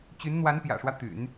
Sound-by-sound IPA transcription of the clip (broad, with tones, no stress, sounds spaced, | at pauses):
t͡ɕ y˧˥ n n̪ w a˧˥ n p j ä̰˨˩ ʂ w ä˦ t̪ y̰˨˩˦ n